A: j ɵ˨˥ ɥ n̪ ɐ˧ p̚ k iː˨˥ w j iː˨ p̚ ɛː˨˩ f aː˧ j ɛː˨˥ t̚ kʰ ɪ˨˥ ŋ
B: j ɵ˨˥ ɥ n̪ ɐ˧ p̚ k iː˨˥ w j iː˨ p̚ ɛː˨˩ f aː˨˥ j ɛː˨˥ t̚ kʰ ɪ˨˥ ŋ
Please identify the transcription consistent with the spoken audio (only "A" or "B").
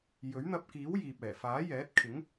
B